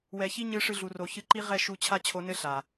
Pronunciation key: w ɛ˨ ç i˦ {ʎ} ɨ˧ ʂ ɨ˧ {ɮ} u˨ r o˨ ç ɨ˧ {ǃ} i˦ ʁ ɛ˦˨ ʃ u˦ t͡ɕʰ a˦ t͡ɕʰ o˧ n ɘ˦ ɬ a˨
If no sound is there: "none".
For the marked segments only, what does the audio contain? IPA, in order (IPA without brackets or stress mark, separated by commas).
ɲ, ɮ, ǃ